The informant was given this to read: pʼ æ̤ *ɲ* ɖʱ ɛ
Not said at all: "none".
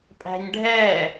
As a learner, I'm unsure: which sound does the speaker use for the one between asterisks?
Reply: ɲ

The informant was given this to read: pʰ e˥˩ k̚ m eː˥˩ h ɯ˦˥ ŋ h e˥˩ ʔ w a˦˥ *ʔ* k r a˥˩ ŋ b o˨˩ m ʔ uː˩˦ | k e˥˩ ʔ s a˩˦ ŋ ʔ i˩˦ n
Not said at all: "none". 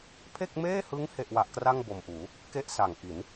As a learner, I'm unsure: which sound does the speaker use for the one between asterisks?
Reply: ʔ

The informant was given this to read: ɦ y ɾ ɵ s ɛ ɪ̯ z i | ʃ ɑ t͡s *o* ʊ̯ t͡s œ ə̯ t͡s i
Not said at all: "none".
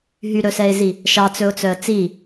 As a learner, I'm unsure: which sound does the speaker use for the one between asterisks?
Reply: ɵ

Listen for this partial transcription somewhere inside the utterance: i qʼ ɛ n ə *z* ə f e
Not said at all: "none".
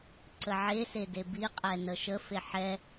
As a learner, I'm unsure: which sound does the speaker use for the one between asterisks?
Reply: ʃ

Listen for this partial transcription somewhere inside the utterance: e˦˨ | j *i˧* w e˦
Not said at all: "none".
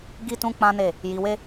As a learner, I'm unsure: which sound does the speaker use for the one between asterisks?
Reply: i˧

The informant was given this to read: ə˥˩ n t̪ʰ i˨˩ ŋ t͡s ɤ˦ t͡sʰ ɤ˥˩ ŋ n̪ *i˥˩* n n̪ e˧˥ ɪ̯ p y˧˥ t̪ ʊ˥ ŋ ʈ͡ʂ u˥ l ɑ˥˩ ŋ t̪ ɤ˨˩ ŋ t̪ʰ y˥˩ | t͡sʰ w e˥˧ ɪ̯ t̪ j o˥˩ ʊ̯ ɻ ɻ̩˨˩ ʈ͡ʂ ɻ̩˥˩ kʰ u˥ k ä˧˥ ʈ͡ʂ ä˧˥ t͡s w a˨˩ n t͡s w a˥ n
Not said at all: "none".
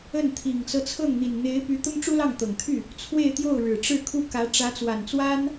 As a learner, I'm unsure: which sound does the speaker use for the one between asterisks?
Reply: i˨˩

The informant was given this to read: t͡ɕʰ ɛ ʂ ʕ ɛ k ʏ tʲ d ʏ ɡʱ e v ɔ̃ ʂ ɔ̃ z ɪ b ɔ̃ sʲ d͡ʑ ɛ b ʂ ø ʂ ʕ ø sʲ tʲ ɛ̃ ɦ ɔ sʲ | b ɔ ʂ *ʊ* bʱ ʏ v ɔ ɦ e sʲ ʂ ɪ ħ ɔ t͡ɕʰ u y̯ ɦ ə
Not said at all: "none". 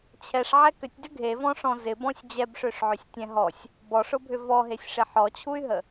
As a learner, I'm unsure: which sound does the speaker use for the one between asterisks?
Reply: ʊ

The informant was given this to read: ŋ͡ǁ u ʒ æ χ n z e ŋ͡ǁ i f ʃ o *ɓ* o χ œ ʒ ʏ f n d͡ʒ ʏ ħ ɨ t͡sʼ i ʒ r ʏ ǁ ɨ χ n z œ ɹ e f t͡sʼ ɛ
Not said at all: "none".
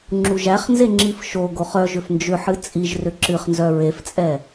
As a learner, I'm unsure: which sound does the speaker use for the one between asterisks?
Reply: ɡ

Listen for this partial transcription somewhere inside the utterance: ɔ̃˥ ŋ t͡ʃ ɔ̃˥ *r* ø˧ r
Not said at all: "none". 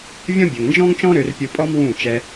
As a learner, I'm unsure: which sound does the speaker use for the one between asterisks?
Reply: ɾ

